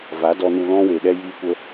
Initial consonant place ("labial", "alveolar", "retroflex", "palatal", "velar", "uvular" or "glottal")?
labial